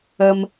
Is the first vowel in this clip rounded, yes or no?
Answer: no